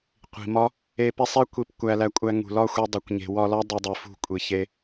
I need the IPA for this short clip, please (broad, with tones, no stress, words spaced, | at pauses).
qʷi̤˨mɒ˦ | e˧ pi˧sˤe˦ kʷi˧p kʷæ˧læ˧kʷʼæ˧ ŋṳ˨lɒ˦˨xʷe˧ dˤo˨kʷɲe̤˨ wɒ˧lɒ˦ dˤe˧ dˤi˨fṳ˦˨kʷʼi˨ çe˧